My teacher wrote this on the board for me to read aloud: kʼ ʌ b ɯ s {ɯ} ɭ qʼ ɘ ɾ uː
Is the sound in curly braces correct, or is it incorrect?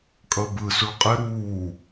incorrect